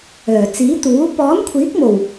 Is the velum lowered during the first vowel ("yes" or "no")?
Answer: no